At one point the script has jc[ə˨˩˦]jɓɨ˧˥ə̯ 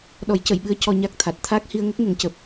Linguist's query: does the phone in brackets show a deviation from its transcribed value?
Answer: yes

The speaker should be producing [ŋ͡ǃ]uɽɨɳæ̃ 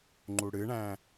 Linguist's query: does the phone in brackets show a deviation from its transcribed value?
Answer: no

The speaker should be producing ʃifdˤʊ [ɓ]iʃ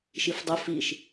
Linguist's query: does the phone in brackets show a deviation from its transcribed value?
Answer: yes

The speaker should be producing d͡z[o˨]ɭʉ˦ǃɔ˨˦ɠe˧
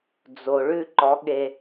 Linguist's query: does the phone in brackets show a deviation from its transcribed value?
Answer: no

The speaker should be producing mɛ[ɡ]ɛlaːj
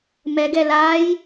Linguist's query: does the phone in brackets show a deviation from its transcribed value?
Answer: no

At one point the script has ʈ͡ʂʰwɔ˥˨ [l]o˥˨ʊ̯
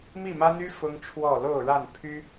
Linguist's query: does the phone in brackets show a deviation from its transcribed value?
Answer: no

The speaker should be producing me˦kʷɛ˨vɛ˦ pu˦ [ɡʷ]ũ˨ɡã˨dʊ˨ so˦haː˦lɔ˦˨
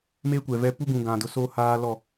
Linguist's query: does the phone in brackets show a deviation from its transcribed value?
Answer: yes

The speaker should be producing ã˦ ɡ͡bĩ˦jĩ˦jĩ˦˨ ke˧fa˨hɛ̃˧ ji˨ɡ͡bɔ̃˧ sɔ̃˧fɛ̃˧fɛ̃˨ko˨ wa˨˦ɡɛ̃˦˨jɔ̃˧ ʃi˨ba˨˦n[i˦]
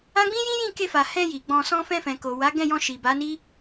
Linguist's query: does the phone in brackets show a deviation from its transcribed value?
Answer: no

